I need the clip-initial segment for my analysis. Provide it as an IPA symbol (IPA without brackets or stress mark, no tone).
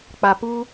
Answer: k͡p